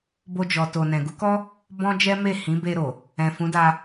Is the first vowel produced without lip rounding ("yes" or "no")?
no